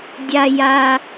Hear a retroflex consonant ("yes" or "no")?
no